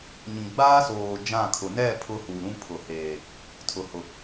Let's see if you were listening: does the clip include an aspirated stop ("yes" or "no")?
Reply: yes